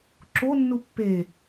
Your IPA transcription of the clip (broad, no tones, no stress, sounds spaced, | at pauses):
ǁ o nː u pː e